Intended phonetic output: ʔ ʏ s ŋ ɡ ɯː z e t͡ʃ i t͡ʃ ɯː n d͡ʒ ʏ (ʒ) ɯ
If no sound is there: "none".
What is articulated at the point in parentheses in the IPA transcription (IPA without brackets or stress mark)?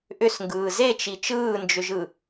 ʒ